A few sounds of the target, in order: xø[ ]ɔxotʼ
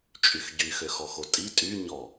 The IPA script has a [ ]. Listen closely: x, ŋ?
x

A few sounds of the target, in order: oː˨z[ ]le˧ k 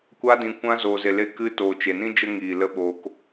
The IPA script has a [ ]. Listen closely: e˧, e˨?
e˨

